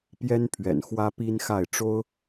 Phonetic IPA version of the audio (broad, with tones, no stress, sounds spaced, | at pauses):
p j ɛ˥ n pʰ ɥ ɛ̰˨˩ n x w ä˥ p i˥ n x a˥˩ ɪ̯ ʈ͡ʂ o˥ ʊ̯